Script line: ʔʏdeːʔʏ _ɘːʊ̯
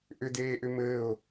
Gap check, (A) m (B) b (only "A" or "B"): A